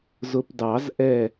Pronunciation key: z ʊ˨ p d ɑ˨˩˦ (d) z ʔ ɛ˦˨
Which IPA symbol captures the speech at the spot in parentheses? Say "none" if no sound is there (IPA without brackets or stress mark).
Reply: none